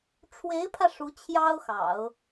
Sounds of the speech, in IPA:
ʈ͡ʂʰwe˧˥ɪ̯pʰä˧ ʂu˧˥t͡ɕʰjɑ˥ʊ̯xɑ̰˨˩˦ʊ̯

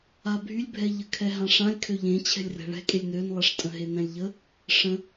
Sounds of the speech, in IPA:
abʱylʲbʱɛ ʎəkʰɛɦãʂãlʲ kʰøʎẽ t͡ɕʰɛ̤lʲrɛ̤ɭɛ̤kʼelʲ nønlˠɛʂtʼə̃ɦe nɛ̃lʲʎə | ʂə̃

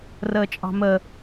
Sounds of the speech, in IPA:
rəːt͡ʃʼɑ̤mə

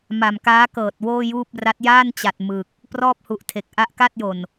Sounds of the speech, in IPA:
ma˨˩mkaː˦˥ kɤː˨˩t̚woː˥˩juː˥˩p̚ ra˦˥t̚ jaː˥˩nt͡ɕa˨˩t̚ mɯ˨˩k̚ | prɔː˥˩p̚hu˨˩ʔtʰe˨˩k̚ ʔa˦˥ʔka˥˩t̚jo˨˩n

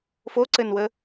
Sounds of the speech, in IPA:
foǀɘnwə

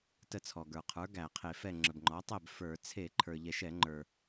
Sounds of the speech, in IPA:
tə˥˨t͡sʰɔ˩ɡə˞˩ qʰə˞˩˥ ɡæ˧˩˧qʰe˧˩˧fɛ˥˨ ŋ͡ǁə˩bŋ͡ǃɔ˩˥ tˤɛ˥˨b fə˞˧˩˧ t͡sʰe˧˩˧ǃʰə˞˩ ʎɛ˧˩˧ʃɛ˧˩˧ ŋ͡ǃə˞˩

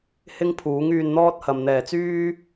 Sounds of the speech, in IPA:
hɪ˥ŋpʰuː˨˥ŋ yː˧nn̪ɔː˥t̚hɐ˨m n̪ɛː˨˩t͡syː˥

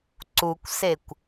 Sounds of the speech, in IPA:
ǀukʷsekʷ

